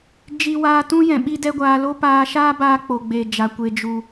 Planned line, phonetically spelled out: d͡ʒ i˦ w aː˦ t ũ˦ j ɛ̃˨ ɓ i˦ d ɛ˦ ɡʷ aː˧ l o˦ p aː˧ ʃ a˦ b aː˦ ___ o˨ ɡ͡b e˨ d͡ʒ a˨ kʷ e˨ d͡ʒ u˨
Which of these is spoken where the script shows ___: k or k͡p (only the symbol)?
k͡p